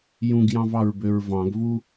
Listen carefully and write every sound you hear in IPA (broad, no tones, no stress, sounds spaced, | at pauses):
j ũ ɡ j ɑ̃ v ɑ ɹ b ø ɹ v ɑ̃ ɡ v u